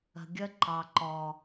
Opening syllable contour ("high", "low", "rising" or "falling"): low